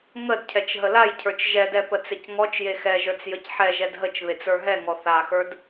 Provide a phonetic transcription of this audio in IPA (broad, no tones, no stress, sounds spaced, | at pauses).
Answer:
ŋ ə d cʰ ɛ t͡ʃ ɦ ə l a j cʰ ə˞ t͡ʃ ʒ ɛ d ɛ p ə t͡s e c ŋ ɔ t͡ʃ j e x ɛ ʒ ə˞ t͡s j ə c ħ ɛ ʒ ɛ d ɦ ə t͡ʃ β e t͡s ə˞ ɦ ɛ ŋ ɔ θ a x ə˞ d